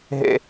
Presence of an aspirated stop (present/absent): absent